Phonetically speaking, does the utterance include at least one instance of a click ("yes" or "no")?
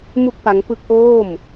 no